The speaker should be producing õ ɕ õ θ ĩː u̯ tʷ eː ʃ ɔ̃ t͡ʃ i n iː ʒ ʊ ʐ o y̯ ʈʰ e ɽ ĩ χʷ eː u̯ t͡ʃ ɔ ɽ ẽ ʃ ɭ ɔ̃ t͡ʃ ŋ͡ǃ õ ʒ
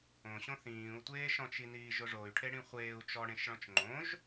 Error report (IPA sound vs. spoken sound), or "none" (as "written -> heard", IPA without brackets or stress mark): none